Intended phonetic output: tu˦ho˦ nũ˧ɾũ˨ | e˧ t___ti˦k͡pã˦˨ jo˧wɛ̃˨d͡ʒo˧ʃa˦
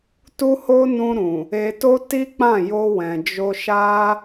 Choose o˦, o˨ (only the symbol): o˦